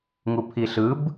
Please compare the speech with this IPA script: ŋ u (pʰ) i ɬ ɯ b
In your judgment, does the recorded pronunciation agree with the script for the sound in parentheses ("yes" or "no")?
yes